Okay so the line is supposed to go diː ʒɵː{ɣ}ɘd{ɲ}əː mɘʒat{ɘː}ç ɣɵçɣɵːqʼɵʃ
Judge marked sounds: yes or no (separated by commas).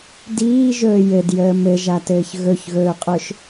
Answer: no, no, yes